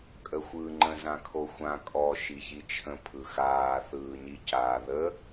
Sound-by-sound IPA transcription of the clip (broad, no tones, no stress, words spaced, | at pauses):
kʼəxʷɯːŋ͡ǃə̃ zãkʰoxʷã kʼɔ ʃiçit͡ʃʰə̃ pʰɯxaː θɯːɲicaːðə